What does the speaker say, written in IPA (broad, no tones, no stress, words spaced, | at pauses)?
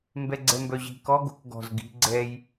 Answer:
mbɛɡ͡ǀɛmbœʑi̤ kɔ ɡo̤kɡɔ̤z ɡi̤ ɡ͡ǀɛj